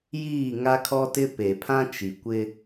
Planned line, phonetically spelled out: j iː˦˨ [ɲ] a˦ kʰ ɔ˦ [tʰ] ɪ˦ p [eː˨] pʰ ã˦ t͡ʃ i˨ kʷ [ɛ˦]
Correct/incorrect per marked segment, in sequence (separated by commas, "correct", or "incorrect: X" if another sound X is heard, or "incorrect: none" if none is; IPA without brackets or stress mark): incorrect: ŋ, incorrect: t, incorrect: e˨, incorrect: ɪ˦